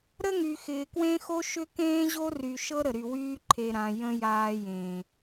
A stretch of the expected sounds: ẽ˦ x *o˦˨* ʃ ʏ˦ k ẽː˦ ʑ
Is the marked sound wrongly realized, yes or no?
yes